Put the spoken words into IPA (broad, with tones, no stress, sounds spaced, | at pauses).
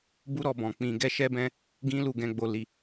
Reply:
b u˦ ɾ ɔ˧ b ɔ̃˨ k͡p ĩ˧ ɡ ɛ˦ ʃ ɛ˦ b ɛ̃˦ | ɡ ĩ˦ l u˦˨ ɡ ɛ̃˨˦ ɡ͡b o˧ l i˧